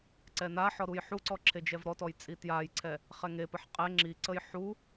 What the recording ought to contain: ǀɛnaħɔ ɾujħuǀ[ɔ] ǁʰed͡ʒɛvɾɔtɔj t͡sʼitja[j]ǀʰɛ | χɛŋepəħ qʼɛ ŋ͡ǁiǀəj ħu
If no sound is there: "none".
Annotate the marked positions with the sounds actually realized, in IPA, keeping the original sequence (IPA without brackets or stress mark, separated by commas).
ɔ, j